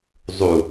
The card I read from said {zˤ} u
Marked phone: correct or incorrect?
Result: correct